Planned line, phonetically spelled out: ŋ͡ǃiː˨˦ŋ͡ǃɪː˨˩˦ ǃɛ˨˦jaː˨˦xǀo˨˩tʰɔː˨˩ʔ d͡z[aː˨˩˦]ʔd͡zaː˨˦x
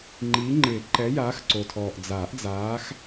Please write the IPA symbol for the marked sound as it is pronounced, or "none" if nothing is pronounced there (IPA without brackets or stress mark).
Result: aː˨˩˦